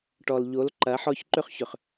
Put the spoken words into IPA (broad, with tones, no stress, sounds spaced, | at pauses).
ʈ ɔ˨ l ʎ o˨˦ l ǃ ɐ˨˦ ħ ɔ˦ ç ǃ ʏ˦ χ ç ʏ˨ χ